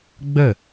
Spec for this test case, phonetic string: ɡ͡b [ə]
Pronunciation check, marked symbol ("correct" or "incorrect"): correct